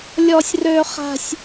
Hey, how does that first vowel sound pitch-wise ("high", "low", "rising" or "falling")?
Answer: high